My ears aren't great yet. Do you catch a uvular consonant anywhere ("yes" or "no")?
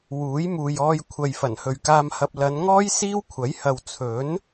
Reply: no